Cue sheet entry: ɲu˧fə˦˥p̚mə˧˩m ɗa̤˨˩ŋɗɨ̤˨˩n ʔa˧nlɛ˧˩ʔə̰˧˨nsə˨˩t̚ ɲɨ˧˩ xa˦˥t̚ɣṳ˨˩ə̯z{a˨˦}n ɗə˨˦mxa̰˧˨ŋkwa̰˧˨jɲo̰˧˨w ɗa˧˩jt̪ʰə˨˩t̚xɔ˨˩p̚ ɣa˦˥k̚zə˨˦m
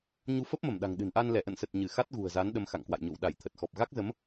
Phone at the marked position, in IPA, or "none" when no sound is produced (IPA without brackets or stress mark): a˨˦